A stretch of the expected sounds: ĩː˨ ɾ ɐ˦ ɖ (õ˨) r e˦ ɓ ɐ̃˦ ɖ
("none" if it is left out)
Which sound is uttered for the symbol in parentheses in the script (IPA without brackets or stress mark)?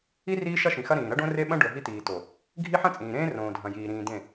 õ˦